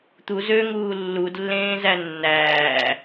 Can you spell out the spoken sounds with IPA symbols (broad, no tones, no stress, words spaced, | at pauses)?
t̪u zøŋuː lːudlːẽːzæ nːæː